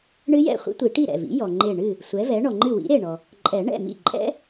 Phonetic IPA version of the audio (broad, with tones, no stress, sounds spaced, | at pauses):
ɳ ɨ˦˥ j ɛ̰˥˩ χʷ ḭ˦˥ tʷ i˨˩˦ ʈ i˥˩ ɾ ɛ̰˥˩ v ḭ˩˥ j ɔ˩ ŋ͡ǃ e˧˩ ɳ ɨ˥˩ | sʷ ɛ˩˥ v ɛ˩˥ ɳ ɔ˩ ŋ͡ǃ ɨ˥˩ w ḭ˩˥ ɾ e˧˩ ɳ ɔ˩ | ǃʼ ɛ˨˩˦ ɳ ɛ̰˥˩ m ḭ˥˩ ǃʼ ɛ̰˦˥